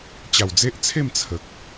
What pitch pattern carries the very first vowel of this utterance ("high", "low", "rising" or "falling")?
low